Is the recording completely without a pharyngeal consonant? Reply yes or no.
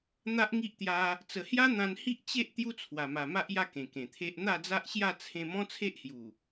yes